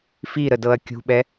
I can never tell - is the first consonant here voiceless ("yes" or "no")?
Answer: yes